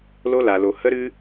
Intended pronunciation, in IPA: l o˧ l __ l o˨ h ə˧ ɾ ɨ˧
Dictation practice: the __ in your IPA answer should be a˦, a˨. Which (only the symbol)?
a˨